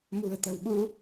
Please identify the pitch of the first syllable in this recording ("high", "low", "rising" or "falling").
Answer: low